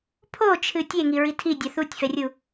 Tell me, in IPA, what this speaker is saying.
pʰ o t͡ʃʰ ɨ tʲ e ŋ i ɹ i tʰ i dʲ a θ u tʲ f ɛ rʲ u

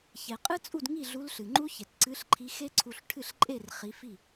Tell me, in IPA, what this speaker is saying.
ç e˩ qʼ ɨ˦˥ t͡sʼ u˥˩ d ŋ i˥˩ ɮ u˨˦ l ɬ ɨ˩ ŋ͡ǃ u˦˥ ç e˩ t ǀ ɨ˨˦ ɬ ǃʰ i˨˦ x e˦˥ ǀʰ u˧˩ ɬ ʈʰ ɨ˥˩ ɬ ǃʼ e˥˩ r χ i˨˦ f i˥˩

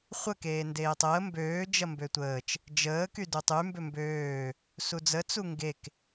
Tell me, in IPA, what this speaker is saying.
χʷ ə k eː n d eː tˤ əː m b øː d͡ʒ ɐ m b ø tʷ əː t͡ʃ | d͡ʒ əː k y d u tˤ y m b ø m b øː | s u d͡z ə t͡s u ŋ ɡ e k

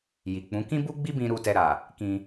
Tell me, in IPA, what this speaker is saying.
j i˨ k͡p ũ˨˦ k ĩ˦ b u˦ ɡ͡b i˦ b ĩ˧ ɾ u˨ t ɛ˨ ɾ a˨ | k ĩ˧

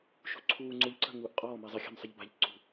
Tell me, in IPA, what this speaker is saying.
ʃ ṳ ǀʰ uː ŋ͡ǀ u ʎ ǀ ə̤ ŋ uː ʔ qʼ ɔː m i zˤ ɪ xʲ a̤ m sˤ ɪ ʎ b a̤ ʎ ǀ ṳ

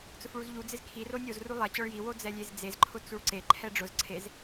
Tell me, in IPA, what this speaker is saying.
t͡s ʊ f ɭ u z ʎ u d͡z ɪ z kʰ i r o nʲ o z r u lˠ ɛ t͡ɕ ɔ ɭ j i w o d͡z ɛ lʲ e z d͡z e z ǃʰ ʊ t͡s u ɭ ǀ e ǃʰ ɛ ɖ͡ʐ ʊ z ǀʰ e z

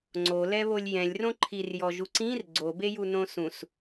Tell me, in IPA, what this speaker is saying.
ŋ͡ǀ o l ɛ β o lʲ j ɛ̃ lʲ r õ ǃʰ i r j ɔ ʒ u ǀ ĩ r ɡ͡ǀ o b e j u n õ s ũ s

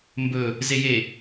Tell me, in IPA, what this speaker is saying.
m b ɵ | z e j e

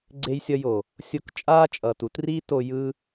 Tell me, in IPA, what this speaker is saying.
ɡ͡ǀ e˧ j sʲ ʌ˧ j o˨ | sʲ o˧ k t͡ʃʼ aː˦ t͡ʃʼ ʌː˨ t u˦ t r i˦ t o˧ j ɯ˦

